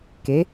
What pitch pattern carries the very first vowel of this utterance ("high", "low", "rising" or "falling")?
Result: rising